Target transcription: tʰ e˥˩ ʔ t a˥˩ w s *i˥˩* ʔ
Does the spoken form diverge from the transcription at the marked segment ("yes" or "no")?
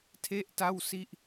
no